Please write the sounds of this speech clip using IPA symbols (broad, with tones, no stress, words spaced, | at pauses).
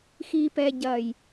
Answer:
xi˨pɛ˨ɟɐ˨j